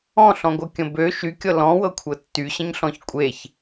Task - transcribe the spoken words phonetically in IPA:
ɔ̃ ɬ ɔ̃ ɡʷ ɤ kʲ ə̃ b ø ʃ y kʲ ɤ l ɔ̃ w ɤ kʷʰ ɤ tː y ɕ ə̃ ɲ ɬ ɔ̃ ç kʷʼ e ç

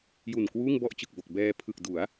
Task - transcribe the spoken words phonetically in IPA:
j u˨˩ n k w uː˥˩ ŋ b ɔ˥˩ ʔ t͡ɕ ɯ˨˩ k̚ b o˨˩ k̚ b ɛː˧ pʰ ɯ˨˩ k̚ d u˩˦ a̯

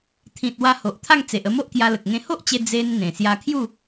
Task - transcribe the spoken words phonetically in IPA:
t̪ʰ ĩ˨ t̚ w a˧ h o˨ ʔ t̪ʰ a˥˧ ŋ t͡s e˨ ʔ ə˧ m o˦ ʔ k j a˧ l ə˨ k̚ ŋ ẽ˧ h o˦ ʔ t͡ɕ e˧ d͡z e˧ n n̪ ẽ˨˩ s j a˧ kʰ j u˥˧

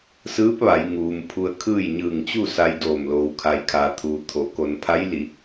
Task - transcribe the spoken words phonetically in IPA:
s ɯː˧˥ p̚ ʋ a˩˧ j ŋ uː˩ m pʰ u˧ ə̯ kʰ ɯː˥˨ j ɲ ɯː˧˩ ŋ t͡ɕ u˥˨ s a˧ j d oː˧˩ m l oː˩ w kʰ a˩ j kʰ aː˩ t̪ʰ uː˩ t̪ʰ o˩˧ k o˩ n pʰ a˧˥ j l i˩˧

